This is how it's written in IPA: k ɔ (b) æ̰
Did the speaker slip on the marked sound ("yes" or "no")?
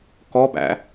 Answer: no